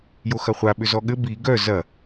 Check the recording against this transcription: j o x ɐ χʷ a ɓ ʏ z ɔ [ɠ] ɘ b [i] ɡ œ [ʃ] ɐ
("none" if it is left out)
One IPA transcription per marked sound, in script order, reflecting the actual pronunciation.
ɠ, i, z

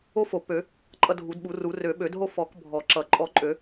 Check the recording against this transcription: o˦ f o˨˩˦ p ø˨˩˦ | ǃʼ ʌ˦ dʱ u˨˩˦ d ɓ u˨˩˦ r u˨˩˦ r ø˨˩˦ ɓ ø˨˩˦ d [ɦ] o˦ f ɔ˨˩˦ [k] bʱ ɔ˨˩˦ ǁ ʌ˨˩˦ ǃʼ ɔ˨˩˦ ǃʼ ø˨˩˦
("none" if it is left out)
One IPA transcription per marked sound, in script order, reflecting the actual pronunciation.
ɦ, k

